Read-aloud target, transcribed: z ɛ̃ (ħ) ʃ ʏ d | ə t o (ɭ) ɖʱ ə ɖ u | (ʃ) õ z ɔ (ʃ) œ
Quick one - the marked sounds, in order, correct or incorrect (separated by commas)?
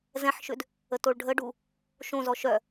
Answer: correct, correct, correct, correct